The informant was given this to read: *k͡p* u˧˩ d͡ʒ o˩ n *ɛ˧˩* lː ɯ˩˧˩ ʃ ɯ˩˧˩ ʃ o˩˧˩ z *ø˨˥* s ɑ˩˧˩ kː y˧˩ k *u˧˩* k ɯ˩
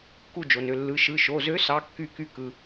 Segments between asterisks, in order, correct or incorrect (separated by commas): incorrect, incorrect, correct, incorrect